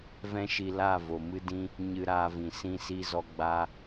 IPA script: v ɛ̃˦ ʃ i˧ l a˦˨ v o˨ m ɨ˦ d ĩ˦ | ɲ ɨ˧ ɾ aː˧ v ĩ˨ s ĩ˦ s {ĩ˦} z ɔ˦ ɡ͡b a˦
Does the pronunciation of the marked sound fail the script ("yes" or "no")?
yes